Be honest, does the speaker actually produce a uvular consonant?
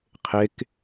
yes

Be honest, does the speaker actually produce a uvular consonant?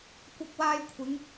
no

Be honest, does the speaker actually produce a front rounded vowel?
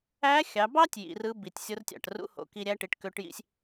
yes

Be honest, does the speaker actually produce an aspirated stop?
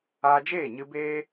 no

